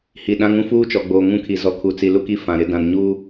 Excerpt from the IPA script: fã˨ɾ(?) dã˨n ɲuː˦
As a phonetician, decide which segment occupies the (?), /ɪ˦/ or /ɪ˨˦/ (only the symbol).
ɪ˨˦